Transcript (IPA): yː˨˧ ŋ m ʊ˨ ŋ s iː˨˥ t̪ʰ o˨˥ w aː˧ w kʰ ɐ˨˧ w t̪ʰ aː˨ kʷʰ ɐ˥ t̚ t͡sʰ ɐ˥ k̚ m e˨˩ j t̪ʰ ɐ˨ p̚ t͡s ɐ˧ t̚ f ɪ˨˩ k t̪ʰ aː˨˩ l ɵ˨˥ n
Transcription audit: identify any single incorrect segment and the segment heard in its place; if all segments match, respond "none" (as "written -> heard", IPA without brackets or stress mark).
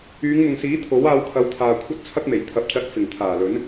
k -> ŋ